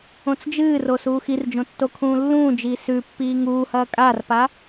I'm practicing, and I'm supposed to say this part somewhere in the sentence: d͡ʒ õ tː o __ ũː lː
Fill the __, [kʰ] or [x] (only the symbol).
kʰ